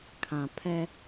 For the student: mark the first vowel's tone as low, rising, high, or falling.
low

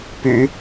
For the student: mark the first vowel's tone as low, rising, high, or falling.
low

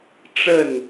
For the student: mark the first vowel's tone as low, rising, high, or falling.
falling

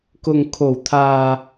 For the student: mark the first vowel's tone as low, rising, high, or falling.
low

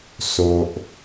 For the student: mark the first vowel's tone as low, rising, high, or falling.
low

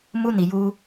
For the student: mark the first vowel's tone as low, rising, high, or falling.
high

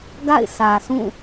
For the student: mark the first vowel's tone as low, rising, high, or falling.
falling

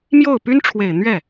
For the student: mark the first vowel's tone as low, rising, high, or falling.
falling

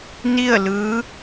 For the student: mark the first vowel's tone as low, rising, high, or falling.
falling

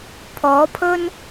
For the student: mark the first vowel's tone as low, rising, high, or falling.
rising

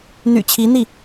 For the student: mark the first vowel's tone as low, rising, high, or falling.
low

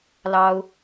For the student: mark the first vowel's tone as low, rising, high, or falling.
high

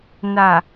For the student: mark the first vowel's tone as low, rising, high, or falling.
low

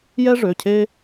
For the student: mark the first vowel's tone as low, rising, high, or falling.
high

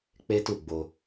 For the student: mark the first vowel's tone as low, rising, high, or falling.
high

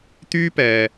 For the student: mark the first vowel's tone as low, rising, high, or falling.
high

